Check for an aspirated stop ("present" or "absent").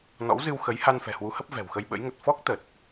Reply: absent